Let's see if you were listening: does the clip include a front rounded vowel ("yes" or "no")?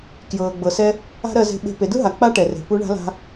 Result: no